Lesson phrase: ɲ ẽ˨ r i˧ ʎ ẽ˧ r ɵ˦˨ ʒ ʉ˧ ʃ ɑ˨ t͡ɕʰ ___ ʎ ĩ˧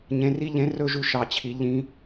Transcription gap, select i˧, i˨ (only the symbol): i˨